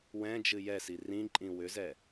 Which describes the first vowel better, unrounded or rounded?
unrounded